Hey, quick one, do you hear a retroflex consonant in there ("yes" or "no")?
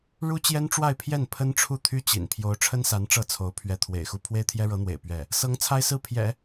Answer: yes